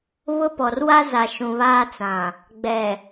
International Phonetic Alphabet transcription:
β ʊ˦ p ɔ˨ r w a˦ z a˨ ʃ ũ˨ β aː˦ t͡s ã˨ | ɡ͡b ɛ˨

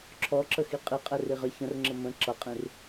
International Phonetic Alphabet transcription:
ǁʰ ɔ ǁ ə x i qʼ i qʼ ɛ r i ʁ ə ç ə̃ r ŋ͡ǁ ə m ə̃ ǁ ʌ qʼ ĩ r

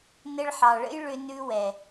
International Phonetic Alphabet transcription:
n ɘ˧ ɭ ħ ɑ˨ ɭ ə̰˦ j ɭ ʏ˧ n ʉ˧ w ɛ˨

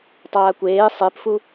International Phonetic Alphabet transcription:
tˤ aː kʷ eː sˤ e p f u

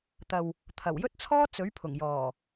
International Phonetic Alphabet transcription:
t̪ ɐ˨ w | t̪ʰ ɐ˨˩ w j ɵ˥ t̚ t͡sʰ ɔː˥ t͡s ɵ˨˥ ɥ pʰ ʊ˨˩ ŋ j ɔː˨˩

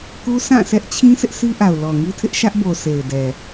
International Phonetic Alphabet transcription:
k u˦ sʰ ã˦˨ s ɛ˦ ʔ t͡ɕʰ ĩ˦ sʰ ɪ˦ ʔ s i˦ ʔ a˨ ʊ̯ l ɔ˨ ŋ i˦ tʰ ɪ˦ ʔ ʃ ä˦ ʔ b o˨ s e˨ ɪ̯ d ɛ˨

